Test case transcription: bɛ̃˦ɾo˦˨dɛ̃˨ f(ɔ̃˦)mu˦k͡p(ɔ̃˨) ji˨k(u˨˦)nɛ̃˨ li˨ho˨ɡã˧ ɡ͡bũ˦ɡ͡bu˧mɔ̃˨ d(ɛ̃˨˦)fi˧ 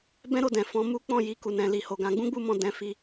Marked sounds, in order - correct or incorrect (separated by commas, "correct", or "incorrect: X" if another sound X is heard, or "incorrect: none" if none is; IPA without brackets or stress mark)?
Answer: incorrect: ɔ̃˧, incorrect: ɔ̃˦˨, incorrect: u˨, correct